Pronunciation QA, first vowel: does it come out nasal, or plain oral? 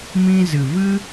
nasal